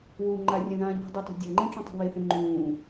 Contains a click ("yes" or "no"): yes